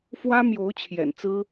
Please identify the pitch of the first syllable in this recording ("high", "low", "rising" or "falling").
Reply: high